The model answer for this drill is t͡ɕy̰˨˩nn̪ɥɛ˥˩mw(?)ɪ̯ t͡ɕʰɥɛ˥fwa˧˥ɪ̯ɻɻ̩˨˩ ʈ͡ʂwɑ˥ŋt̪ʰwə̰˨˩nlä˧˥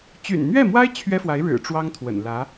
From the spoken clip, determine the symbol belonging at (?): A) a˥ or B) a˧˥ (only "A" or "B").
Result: A